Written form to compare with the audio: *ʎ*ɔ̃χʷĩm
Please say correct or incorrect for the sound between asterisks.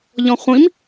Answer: correct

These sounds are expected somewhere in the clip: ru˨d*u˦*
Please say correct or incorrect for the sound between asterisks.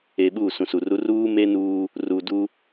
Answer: correct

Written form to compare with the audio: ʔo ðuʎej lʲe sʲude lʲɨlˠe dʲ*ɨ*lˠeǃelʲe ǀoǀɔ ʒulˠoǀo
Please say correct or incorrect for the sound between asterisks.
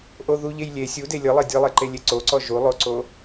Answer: correct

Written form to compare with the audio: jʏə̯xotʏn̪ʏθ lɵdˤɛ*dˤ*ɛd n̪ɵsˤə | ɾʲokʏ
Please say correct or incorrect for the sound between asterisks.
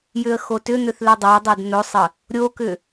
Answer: correct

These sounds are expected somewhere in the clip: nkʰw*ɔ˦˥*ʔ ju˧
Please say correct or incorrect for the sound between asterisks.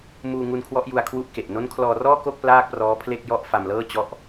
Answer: correct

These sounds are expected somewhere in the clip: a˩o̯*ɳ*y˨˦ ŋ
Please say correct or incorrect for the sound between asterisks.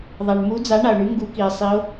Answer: correct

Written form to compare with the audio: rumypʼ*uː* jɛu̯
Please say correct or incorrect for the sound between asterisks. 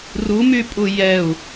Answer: incorrect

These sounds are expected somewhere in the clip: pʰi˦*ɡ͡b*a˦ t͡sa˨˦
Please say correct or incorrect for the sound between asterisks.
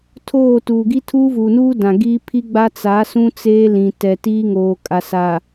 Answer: correct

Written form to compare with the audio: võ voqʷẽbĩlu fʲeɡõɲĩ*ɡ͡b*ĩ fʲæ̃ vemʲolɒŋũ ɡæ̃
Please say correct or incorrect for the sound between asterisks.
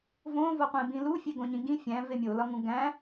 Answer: incorrect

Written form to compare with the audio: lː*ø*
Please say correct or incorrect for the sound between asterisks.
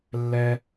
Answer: incorrect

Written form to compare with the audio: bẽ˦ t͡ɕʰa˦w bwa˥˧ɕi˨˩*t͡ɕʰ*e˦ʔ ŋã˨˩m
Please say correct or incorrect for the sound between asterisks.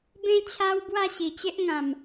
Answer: incorrect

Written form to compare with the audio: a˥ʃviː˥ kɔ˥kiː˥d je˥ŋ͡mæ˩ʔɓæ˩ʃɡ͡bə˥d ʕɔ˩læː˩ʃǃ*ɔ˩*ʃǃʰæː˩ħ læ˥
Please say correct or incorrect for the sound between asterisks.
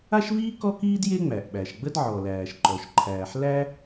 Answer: correct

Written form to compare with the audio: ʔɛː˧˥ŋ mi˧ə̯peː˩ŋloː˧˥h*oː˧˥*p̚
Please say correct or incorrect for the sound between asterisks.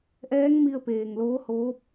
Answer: correct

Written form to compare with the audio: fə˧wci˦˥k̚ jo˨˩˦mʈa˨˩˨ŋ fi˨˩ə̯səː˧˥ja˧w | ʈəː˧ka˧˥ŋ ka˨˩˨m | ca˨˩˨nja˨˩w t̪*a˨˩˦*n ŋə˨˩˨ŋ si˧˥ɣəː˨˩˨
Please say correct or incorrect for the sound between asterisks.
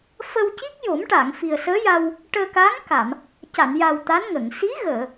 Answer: incorrect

